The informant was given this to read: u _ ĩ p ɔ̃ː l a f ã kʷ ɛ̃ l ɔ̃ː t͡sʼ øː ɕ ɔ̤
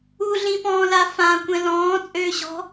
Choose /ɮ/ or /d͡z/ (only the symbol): ɮ